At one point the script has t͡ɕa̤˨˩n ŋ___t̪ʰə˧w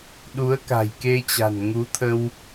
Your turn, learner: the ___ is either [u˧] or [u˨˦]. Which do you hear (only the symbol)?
u˨˦